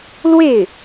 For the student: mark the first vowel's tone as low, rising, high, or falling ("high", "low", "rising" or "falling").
falling